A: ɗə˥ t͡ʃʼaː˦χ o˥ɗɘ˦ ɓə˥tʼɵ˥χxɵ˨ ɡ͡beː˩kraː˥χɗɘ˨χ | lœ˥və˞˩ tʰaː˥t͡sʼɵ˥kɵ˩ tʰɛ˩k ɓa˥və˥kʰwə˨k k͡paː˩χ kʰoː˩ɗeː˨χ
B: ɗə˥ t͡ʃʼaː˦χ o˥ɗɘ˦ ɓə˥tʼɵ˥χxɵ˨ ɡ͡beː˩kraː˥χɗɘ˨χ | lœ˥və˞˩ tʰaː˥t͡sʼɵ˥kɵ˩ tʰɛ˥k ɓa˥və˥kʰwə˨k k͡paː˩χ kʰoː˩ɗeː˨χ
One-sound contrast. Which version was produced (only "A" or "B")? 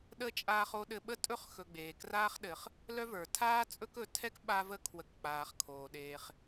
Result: B